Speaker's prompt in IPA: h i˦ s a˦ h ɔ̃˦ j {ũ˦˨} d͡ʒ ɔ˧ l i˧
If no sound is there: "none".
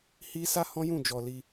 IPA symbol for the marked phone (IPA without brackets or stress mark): ũ˦˨